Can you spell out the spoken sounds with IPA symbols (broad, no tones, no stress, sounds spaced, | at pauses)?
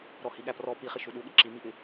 ɾ ɔ h i ɠ æ p r ɔ p i χ ɪ ʃ u ɗ u ɠ ɪ ǁ i m i ʔ ɪ